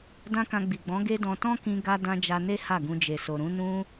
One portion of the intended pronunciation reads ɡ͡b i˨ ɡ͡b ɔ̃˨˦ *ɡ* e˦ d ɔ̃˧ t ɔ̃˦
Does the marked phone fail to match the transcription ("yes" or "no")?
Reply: no